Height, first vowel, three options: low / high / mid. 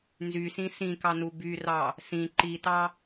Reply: high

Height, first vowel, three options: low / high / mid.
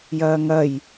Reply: low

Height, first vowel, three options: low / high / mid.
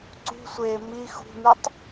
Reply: high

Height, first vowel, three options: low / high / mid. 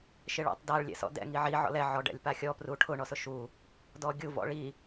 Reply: high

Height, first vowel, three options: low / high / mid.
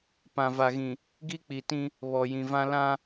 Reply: low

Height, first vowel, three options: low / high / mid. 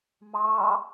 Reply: low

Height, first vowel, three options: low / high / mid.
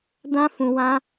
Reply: low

